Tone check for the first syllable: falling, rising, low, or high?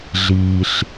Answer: low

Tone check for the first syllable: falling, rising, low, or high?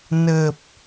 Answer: low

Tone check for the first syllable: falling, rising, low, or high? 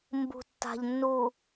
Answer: low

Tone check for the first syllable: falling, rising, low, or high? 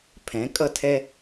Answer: rising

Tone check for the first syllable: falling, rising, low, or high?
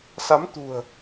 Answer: rising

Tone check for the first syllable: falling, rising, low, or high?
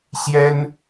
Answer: high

